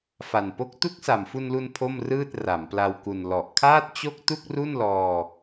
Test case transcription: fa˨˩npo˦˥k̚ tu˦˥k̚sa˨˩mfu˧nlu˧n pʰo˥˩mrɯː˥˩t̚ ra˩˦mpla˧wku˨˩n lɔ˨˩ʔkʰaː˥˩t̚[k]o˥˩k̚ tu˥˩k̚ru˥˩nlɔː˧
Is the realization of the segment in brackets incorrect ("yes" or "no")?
yes